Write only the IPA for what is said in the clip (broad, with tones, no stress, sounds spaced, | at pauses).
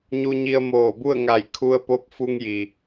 ɲ u˧ ɲ i˧ ə̯ m oː˧˩ b u˥˨ ə̯ ŋ a˧˩ j kʰ u˧ ə̯ p o˧˥ p̚ f u˧ ŋ j i˩